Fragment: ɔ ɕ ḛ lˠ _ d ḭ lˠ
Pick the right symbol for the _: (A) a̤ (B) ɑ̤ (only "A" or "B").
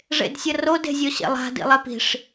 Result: A